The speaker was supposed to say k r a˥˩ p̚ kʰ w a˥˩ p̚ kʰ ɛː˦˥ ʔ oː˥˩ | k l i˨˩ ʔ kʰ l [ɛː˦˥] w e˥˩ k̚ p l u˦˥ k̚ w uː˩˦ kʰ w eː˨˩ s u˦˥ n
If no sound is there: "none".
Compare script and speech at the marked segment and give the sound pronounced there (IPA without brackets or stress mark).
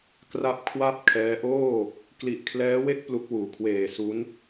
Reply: ɛː˦˥